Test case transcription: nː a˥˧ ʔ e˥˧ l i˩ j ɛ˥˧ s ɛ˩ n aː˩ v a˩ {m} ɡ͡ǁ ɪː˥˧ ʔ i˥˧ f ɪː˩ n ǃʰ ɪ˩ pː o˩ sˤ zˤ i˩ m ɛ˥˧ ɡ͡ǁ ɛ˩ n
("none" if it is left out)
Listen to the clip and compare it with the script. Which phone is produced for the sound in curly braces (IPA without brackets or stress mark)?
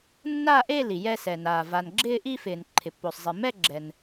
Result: n